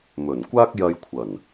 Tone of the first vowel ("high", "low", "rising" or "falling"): low